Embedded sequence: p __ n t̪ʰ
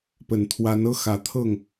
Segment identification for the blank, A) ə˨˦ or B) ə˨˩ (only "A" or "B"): B